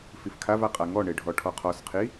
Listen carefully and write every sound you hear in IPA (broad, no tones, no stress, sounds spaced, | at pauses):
f i f kʰ a v a qʼ a ŋ ɔ ɳ e ɖʱ ɔ ʈʰ ɔ qʰ ɔ s qʰ i